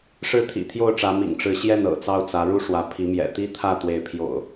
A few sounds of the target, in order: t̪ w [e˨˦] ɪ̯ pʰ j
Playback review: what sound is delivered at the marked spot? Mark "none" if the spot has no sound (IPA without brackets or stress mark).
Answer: e˨˦